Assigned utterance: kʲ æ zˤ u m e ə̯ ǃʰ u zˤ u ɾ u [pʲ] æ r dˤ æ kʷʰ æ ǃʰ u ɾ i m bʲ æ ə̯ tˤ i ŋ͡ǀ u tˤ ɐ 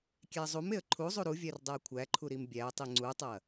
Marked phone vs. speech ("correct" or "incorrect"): incorrect